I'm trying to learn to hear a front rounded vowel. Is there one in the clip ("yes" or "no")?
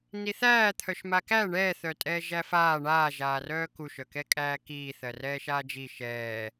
yes